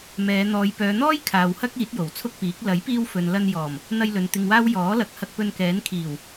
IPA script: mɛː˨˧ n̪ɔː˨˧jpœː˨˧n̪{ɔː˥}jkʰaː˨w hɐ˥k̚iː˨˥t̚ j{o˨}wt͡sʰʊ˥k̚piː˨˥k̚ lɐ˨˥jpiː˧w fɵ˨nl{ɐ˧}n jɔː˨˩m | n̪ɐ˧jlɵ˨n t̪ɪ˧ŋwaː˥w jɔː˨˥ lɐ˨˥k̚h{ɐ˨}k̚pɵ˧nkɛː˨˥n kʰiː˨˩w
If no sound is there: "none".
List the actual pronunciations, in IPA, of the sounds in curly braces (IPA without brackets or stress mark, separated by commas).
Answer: ɔː˥, o˨˩, ɐ˧, ɐ˧